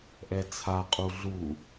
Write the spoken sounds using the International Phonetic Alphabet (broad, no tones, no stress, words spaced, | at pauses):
ʔɛt͡sʰa qʼuɮu